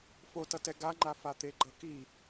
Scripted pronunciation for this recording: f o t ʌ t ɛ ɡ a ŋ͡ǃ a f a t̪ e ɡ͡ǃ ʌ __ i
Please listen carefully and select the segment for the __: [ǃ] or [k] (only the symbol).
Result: k